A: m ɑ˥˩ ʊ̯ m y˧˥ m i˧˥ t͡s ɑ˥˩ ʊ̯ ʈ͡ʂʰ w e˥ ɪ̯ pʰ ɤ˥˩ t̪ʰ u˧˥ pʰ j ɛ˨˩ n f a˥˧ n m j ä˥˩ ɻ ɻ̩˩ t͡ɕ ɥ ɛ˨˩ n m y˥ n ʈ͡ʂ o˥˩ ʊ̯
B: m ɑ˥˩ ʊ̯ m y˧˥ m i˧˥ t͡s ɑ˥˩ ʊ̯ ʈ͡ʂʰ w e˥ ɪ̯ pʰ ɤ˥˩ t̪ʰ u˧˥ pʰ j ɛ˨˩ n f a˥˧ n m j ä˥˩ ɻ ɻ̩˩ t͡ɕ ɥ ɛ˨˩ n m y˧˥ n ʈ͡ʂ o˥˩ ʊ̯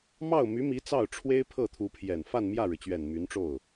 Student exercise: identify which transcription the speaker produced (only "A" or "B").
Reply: B